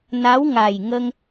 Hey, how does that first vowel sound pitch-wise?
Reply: rising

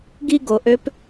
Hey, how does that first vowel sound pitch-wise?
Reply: high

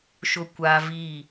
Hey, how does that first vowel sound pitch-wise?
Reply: high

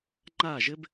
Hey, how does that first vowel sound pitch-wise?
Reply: falling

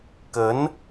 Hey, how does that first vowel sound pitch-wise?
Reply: rising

